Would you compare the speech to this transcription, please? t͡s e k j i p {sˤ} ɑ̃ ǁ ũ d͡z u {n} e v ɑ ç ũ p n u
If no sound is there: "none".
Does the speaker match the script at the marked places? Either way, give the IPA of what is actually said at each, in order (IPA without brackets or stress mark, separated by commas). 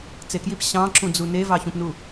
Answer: ɕ, n